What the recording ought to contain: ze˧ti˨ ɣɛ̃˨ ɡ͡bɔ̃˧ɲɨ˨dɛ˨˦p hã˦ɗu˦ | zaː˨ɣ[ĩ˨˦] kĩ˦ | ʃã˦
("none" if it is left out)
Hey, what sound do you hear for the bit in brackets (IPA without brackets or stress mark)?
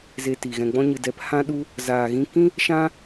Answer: ĩ˧